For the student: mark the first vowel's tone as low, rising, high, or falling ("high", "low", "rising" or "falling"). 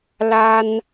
high